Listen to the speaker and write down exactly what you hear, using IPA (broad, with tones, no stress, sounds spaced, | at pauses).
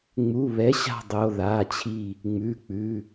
ŋ͡m u˩˧˩ β ɛ˩˥ ɕ a̤˧˩ dˤ o˩˧˩ ð a˩˧˩ t͡ɕʰ i˧˩ | ŋ͡m ʉ˩˧˩ k͡p ʉ˩˧˩